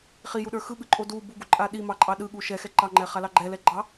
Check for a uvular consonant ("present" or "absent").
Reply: present